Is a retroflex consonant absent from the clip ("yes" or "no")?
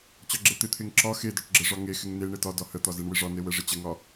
no